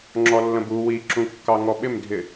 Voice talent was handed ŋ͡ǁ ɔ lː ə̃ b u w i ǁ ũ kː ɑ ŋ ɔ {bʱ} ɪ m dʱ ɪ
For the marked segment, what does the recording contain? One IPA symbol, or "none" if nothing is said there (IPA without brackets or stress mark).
ɓ